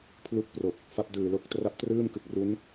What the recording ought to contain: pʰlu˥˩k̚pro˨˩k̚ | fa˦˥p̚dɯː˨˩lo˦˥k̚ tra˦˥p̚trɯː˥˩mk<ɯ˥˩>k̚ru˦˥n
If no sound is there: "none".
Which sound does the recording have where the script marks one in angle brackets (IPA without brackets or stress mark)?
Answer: ɯ˨˩